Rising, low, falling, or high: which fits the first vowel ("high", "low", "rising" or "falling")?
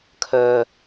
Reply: low